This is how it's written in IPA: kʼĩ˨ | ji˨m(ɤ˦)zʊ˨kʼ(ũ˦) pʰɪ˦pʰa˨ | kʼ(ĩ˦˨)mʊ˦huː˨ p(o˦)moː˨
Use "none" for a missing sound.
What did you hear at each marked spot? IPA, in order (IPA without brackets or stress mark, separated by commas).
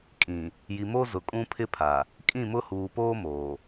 o˦, ũ˦, ĩ˦˨, oː˦